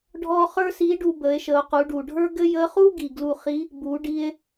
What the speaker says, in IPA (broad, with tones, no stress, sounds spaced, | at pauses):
ɖʱ ɔ˥ χ ə˞˥ s i˧˥ ɖ u˧ b ə˩˧ e̯ ʃ ə˩˧ o̯ q u˩˧ ɖ u˩ ɖʱ ə˞˥ ɡ ɘ˥ j ə˧˥ χ u˥ ɡ i˩ ɡ l u˧ χ i˧˥ | b u˩˧ ɖ i˧ e̯